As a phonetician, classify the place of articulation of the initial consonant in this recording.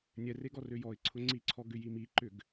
alveolar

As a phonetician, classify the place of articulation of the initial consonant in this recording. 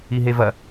glottal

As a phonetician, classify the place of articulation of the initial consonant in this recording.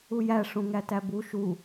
palatal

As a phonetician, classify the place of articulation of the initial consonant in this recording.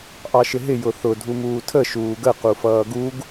glottal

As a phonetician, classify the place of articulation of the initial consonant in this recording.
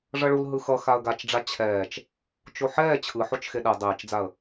retroflex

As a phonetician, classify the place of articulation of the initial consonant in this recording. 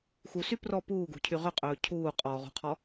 velar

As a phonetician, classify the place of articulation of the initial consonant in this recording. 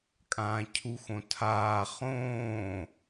velar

